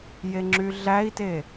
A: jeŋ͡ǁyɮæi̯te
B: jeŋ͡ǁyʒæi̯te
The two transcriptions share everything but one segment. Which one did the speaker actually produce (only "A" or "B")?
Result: A